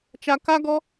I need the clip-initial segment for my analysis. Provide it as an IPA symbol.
t͡ʃ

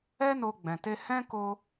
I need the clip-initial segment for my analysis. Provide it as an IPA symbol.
ɛ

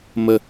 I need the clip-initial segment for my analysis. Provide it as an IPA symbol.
m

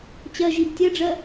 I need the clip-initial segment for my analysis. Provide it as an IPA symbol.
t͡ɕ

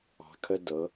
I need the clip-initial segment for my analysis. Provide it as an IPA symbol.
ɑ̤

